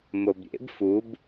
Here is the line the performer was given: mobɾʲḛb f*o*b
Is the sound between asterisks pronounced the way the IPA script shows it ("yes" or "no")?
no